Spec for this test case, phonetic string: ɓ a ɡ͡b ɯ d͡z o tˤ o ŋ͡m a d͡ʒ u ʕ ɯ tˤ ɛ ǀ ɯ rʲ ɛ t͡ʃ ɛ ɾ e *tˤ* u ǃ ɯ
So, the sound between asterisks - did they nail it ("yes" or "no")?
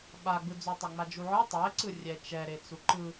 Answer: no